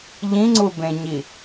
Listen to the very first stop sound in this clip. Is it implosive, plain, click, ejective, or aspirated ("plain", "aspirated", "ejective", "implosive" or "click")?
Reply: click